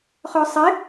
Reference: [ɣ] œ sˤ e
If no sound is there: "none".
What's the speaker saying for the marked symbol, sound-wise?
χ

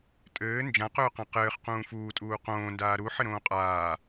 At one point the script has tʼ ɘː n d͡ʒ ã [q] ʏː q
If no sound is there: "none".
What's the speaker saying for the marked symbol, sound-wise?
q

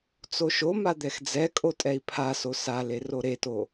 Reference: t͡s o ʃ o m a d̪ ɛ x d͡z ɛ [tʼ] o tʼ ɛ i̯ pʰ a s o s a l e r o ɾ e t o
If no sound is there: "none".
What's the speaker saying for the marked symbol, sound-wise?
kʼ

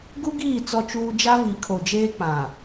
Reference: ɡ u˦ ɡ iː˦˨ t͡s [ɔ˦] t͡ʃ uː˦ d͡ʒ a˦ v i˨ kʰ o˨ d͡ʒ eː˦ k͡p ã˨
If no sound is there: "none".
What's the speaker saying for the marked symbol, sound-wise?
ɔ˦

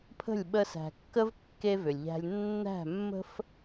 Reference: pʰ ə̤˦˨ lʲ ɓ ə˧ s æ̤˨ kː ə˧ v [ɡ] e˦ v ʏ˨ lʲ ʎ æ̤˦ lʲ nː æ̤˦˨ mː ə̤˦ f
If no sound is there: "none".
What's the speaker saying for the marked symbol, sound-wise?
kː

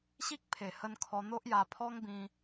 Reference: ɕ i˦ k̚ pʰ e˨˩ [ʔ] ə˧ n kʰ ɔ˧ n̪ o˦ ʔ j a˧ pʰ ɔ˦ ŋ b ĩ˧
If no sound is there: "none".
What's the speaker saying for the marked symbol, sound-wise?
h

